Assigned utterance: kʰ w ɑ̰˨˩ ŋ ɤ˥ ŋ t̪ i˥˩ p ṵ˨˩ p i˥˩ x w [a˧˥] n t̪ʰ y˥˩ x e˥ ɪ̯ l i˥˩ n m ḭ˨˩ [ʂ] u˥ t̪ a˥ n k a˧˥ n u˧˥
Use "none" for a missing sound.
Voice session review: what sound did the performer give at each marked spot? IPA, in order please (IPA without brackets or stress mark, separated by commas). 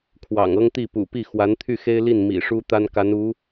a˧˥, ʂ